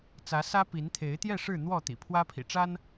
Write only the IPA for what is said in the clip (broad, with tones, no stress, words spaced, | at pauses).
t͡sä˨˦ sä˦pi˨˦n t̪ʰe˨˦ɪ̯t̪jɛ˥˨ʂɻ̩˥˨n̪wɔ˥˨ t̪ḭ˨˩pʰwä˦pʰḭ˨˩ʈ͡ʂa˦n